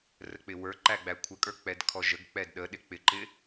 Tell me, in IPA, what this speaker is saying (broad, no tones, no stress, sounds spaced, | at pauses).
r ə k͡p ɪ w ə˞ ǃ æ ɡ͡b æ kʷʰ ə kʼ ə˞ k͡p ɛ d kʰ ɔ ʒ ə ɡ k͡p ɛ d ɗ ə ɗ ɪ k͡p ɪ ǃ ɪ